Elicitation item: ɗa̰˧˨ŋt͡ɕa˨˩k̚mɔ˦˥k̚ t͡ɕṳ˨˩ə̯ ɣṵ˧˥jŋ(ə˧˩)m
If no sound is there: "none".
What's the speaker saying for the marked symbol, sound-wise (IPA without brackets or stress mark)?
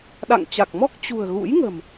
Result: ə̤˨˩